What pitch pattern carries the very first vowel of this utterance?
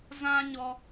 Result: high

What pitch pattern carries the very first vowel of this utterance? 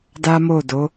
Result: high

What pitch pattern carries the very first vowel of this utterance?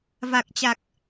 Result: low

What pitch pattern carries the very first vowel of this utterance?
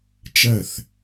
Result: falling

